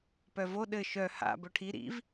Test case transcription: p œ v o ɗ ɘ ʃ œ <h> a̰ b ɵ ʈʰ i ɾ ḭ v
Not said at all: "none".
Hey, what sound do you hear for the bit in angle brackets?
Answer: h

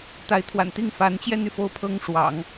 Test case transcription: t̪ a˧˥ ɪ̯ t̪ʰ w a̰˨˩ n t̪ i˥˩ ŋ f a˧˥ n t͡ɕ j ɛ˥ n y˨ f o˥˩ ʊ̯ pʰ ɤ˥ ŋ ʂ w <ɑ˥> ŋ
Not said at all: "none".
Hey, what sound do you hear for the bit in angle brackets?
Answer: ɑ̰˨˩˦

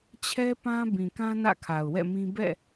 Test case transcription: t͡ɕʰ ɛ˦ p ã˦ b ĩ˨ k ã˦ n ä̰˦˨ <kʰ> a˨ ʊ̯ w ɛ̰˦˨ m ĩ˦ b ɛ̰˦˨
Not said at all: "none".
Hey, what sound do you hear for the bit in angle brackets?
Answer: kʰ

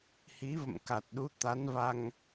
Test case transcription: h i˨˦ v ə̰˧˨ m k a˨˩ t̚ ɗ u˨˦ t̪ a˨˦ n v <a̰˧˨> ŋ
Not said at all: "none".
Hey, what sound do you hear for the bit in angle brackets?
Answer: a˧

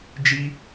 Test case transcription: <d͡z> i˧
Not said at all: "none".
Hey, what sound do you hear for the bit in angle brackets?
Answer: d͡ʒ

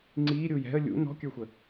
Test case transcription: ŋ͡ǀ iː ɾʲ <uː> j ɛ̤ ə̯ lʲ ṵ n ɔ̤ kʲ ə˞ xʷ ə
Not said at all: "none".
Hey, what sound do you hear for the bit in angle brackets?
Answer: uː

